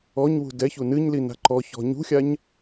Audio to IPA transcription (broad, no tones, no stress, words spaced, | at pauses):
ɔɲwṳ dɛçu nɨɲlina̤ ǃɔçɔ̤ ɲṳxʲaɲ